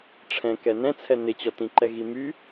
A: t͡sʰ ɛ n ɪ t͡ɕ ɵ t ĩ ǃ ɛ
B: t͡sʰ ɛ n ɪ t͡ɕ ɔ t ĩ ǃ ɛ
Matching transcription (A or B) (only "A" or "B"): B